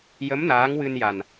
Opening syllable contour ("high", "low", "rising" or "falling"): rising